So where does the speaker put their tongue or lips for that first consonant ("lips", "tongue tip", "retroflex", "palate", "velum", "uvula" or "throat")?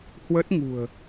throat